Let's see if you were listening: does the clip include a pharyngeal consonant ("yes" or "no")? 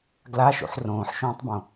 yes